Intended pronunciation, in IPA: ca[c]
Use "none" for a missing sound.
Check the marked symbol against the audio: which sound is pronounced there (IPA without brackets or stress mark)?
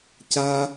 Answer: none